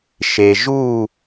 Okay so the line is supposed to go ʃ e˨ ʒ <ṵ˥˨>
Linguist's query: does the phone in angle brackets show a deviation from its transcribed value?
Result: yes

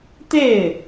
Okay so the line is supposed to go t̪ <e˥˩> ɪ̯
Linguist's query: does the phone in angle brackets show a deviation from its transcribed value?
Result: no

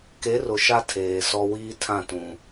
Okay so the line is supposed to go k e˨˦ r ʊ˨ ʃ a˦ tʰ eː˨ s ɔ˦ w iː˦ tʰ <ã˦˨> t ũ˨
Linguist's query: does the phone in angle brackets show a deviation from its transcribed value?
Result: no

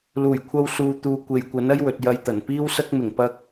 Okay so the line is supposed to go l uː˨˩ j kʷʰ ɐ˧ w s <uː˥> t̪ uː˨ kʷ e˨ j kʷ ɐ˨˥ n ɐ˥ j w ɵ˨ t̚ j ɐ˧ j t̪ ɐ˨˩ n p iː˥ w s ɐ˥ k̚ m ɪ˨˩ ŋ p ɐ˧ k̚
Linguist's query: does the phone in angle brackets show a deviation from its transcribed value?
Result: yes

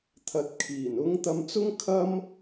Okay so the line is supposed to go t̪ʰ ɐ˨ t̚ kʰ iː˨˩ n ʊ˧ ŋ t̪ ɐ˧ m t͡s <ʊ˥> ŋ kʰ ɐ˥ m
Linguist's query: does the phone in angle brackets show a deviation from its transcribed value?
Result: no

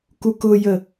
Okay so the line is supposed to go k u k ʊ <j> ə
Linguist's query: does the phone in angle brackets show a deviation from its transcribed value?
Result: no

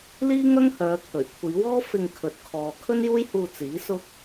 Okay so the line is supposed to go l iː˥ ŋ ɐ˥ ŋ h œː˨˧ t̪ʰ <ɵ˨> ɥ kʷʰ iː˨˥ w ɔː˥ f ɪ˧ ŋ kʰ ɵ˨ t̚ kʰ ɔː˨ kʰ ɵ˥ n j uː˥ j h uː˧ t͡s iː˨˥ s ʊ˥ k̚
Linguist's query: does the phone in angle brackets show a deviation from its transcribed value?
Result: yes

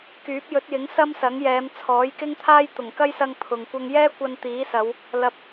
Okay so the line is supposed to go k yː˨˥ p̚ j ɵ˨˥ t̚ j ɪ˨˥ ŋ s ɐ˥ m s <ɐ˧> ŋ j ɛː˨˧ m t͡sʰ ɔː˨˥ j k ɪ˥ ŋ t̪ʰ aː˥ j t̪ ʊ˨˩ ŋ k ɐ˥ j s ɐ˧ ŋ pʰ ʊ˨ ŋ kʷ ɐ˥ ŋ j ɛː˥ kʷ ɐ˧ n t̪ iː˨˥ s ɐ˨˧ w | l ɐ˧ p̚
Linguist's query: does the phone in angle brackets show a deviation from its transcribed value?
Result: yes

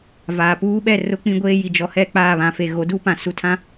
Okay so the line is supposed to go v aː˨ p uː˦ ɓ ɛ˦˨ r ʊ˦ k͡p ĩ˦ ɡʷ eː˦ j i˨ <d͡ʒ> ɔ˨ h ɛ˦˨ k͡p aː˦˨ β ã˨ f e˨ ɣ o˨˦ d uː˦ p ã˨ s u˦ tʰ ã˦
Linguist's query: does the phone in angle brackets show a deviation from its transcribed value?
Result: no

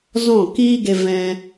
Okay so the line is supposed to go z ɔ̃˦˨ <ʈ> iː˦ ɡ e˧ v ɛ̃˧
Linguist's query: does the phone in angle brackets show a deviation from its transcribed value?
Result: yes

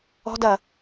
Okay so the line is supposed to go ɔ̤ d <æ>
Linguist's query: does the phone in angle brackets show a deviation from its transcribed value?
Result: yes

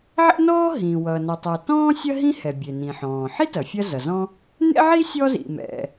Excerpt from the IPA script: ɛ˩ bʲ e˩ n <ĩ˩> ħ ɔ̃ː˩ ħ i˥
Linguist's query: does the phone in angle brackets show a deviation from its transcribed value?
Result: no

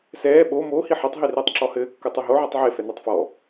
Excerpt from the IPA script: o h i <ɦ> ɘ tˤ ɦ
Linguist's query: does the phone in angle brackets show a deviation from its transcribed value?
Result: yes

